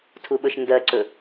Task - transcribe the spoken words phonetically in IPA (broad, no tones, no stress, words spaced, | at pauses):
tʰuɓɵʃndɜǀɵ